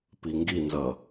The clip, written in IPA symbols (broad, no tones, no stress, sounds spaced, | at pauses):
p i ŋ ɡ i n z ʌ